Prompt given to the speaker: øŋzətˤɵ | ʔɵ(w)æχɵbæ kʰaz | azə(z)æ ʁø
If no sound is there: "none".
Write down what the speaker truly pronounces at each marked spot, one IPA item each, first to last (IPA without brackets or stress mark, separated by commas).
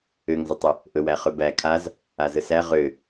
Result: w, s